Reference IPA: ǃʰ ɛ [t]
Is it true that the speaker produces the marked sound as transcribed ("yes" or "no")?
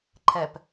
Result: no